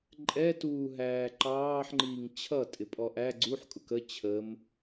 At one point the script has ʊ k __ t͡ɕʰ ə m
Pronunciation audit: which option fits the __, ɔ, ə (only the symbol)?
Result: ə